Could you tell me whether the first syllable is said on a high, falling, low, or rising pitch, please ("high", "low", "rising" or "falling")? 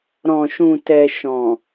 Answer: low